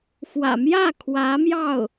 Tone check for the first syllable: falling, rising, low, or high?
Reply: low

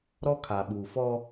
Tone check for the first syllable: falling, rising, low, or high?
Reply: high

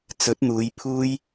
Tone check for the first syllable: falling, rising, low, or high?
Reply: rising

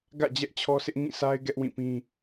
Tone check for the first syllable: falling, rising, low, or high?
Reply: falling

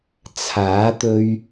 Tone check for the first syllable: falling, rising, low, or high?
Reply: rising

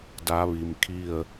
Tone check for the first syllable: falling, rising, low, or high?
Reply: rising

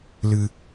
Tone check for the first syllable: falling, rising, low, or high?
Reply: low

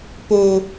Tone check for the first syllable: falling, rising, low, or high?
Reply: low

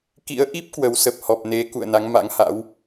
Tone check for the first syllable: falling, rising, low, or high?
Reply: rising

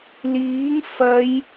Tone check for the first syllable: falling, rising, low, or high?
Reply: rising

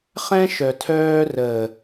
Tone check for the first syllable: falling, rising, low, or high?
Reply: high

